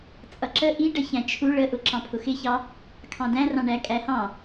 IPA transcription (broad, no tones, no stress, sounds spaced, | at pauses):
t͡sʼ ʌ ǁ ə ʔ i ɖ ə ç æ̃ t͡ʃʰ u ɭ ə ʔ ʊ ǁ ɑ̃ pʰ ʊ x ɪ ç ɑ | kʰ ɑ̃ d æ̃ r ɑ̃ ɳ æ kʼ æ h ɑ̃